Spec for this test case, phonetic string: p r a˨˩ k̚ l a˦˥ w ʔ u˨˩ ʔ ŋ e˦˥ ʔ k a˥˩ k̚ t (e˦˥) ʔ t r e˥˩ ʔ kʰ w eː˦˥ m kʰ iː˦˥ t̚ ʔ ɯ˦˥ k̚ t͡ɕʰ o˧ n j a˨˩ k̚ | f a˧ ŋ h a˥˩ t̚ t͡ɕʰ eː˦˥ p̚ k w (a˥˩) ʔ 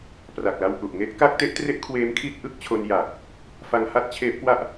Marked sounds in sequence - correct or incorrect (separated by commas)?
correct, correct